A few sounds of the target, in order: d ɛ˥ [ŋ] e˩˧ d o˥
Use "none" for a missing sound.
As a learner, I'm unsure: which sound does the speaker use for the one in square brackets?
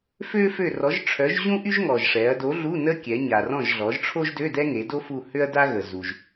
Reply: ŋ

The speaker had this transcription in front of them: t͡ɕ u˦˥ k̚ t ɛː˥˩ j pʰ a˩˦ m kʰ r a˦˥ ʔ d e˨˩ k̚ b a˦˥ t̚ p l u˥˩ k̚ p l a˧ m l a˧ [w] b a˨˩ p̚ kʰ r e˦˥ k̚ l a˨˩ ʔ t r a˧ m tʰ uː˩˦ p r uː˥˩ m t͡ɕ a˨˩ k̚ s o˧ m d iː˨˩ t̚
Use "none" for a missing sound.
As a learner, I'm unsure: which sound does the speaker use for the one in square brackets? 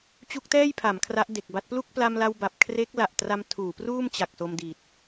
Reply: w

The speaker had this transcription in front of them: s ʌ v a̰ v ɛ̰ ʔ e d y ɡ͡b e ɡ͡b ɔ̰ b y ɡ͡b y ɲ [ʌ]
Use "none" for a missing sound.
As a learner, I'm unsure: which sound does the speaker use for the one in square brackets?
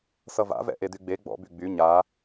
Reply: a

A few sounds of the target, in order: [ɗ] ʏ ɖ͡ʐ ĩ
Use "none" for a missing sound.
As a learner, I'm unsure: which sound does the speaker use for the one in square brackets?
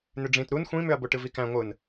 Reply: n̪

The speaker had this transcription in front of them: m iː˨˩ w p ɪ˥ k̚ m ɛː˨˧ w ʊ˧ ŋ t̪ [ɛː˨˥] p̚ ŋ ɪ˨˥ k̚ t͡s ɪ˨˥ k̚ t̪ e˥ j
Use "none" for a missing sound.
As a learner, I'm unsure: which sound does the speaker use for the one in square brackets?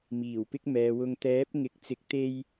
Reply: ɛː˨˥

